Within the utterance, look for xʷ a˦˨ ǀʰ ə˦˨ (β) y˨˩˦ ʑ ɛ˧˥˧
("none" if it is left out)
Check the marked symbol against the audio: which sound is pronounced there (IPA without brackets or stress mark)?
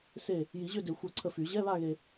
f